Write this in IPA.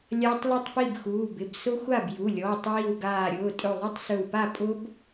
lʲ a˦˥ tˤ l ʊ˥˨ tˤ p i˥˨ b x uː˩˧˩ b ɪ˩˧˩ b s ʊ˦˥ xʷ a˥˨ b j u˩˧˩ lʲ ɔː˩˧˩ tˤ w i˧˩ w ɡ aː˧˩ ɾʲ ʊː˩˧˩ tʼ ɵ˧˩ ðˤ ɨ˦˥ tˤ s ɵ˧˩ w p a˥˨ pʼ ʊ˦˥ b

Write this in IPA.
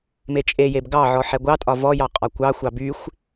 m e t͡ʃʼ e j e b ɡ ɑ ʕ ɔ ħ ɛ ɡʷ ɑ tʼ ɒ v ɔ j ɑ qʼ ɒ kʷ ɑ xʷ ɑ b y xʷ

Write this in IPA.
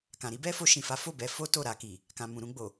k ã˨ ɾ i˨˦ b ɛ˦ f o˧ ʃ ĩ˨ f a˨˦ f o˦˨ b ɛ˧ f o˦ t o˦˨ ɾ a˧ k i˨ | k ã˨ m ũ˨ ɾ ũ˧ ɡ͡b o˨

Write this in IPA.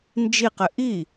n d͡ʒ i q ɘ ʔ i

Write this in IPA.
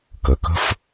k ə˩˧˩ k ə̤˦ f

